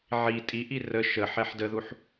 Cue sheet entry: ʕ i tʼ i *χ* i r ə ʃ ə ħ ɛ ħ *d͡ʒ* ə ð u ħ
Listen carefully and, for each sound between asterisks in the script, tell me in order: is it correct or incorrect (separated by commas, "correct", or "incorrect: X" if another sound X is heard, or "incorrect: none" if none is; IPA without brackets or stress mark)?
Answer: incorrect: ʔ, incorrect: d